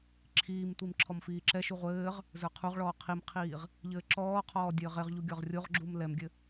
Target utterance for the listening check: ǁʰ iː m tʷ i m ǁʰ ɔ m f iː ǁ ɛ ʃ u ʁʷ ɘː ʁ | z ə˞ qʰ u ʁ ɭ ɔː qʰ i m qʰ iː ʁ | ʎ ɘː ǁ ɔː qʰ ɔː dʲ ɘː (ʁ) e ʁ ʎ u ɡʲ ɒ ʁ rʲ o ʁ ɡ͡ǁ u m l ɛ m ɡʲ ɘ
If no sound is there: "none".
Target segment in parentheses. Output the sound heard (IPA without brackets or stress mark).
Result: ʁ